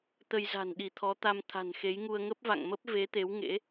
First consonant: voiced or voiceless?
voiceless